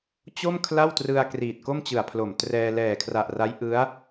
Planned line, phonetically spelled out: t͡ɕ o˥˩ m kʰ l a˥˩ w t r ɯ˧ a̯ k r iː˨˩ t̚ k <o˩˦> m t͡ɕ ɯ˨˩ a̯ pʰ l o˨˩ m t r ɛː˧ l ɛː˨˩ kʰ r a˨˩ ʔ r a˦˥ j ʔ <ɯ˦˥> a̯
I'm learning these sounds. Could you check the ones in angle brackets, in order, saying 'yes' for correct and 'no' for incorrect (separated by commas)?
no, yes